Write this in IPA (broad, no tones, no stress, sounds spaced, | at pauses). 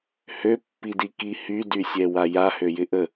h ø pː i d i k i h y d y sʲ ɛ w a j a h ø j ɪ ʔ ə